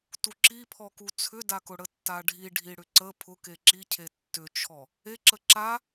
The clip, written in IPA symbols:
tuǁipʰɔ kut͡sʰʏdakʊ ɽətːaɖʱi ɖʱiɽʏǀə pʰʊke ǁicʰe tːʏt͡ʃʰɔ | eǁə ǁa

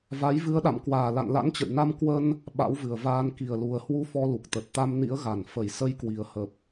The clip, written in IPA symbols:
va˨˦j vɨ˨˦ə̯ɗa̰˧˨mkwaː˧˩ la̰˧˨nla̰˧˥nt͡ɕə̰˧˨jna˧m kwə˧n | ɓa̰˧˥wvɨ˨˩ə̯vaː˧n ki˨˩ə̯lu˨˩ə̯hwu˧ fɔ˧lu˨˩k̚t̪ə˨˩t̚ t̪a˧mnḭ˧˥ə̯ɣa˨˩n fə˨˩jsə˧jkwi˨˩ə̯ hə˨˩p̚

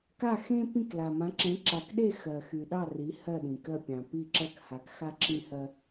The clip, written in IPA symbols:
ka˦˨xẽ˦ pĩ˦˨kla˨mã˨˦ǁẽ˨˦ ǁa˨kɗe˦˨ xɜ˨xy˨ɗɑ˦˨ ri˨˦ hɜ˦˨ ɗĩ˨kɜ˦˨pʲɑ̃˨ pi˦˨ǁɜ˦˨kha˨˦kxa˦ ǁʰĩ˦hɜ˦

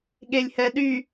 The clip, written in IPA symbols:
ɠelʲhɛɗy

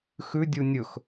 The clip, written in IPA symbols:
xʉdʲu nʲɵx

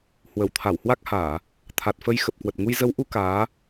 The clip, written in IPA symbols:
hwə˧˩w t̪ʰa˧˩whwa˦˥k̚haː˧˩˨ | t̪ʰa˨˩t̚fə˧j xə˨˩p̚kwə˨˩t̚ŋu˧j zə˨˦wʔu˨˦ kaː˨˦

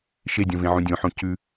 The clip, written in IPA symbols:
ʃedʲõvẽʕũ dʲõħõ cʉ

